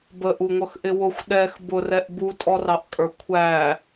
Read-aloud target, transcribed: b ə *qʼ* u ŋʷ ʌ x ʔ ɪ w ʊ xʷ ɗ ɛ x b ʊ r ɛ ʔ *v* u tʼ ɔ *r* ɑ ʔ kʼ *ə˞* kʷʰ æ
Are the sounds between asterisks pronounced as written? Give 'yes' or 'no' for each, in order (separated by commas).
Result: no, no, yes, yes